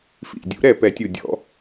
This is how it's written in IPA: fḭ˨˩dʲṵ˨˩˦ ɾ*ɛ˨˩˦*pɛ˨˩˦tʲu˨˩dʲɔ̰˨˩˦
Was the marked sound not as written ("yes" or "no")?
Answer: yes